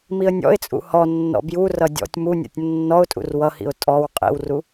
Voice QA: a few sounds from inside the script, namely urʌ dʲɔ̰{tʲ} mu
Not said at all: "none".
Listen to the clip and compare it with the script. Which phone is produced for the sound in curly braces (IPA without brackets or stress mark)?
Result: tʲ